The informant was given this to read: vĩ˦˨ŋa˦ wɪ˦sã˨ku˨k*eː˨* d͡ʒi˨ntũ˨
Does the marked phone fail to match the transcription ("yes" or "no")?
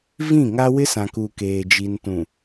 no